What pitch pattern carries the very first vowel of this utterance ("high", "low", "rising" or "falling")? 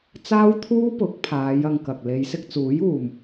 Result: high